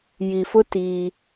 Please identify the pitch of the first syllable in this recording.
low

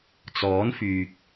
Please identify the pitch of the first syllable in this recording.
rising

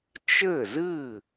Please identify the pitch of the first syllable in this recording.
falling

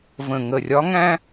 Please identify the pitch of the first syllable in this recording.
low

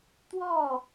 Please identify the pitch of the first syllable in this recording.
falling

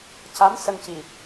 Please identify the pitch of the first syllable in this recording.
rising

